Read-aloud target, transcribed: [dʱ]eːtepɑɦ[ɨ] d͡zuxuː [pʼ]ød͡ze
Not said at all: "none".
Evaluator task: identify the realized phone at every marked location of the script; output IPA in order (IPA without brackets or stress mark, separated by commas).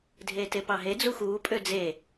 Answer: dʱ, e, pʼ